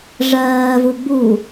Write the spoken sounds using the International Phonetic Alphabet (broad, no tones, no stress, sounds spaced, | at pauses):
ʐ ɜː v u ɡ͡b u